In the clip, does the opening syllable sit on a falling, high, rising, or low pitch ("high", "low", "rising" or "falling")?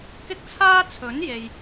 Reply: high